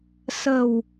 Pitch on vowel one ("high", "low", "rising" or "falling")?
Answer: low